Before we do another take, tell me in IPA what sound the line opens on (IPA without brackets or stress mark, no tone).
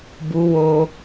b